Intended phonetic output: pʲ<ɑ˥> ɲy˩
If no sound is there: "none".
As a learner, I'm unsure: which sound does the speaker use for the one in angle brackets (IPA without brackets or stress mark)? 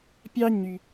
ɑ˥